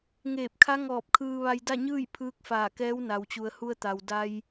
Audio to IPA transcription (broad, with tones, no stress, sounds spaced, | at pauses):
ŋ eː˧˩ p̚ kʰ a˧˥ ŋ ɔː˧˩ p̚ kʰ ɯː˧ ʋ a˧ j d a˥˨ ɲ ɯː˥˨ j pʰ ɯː˧˥ k̚ f aː˧˩ k ɛː˧˥ w n a˩ w t͡ɕ u˩ ə̯ h u˧ ə̯ t̪ a˩ w d a˧ j